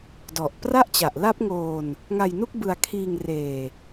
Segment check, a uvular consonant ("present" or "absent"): absent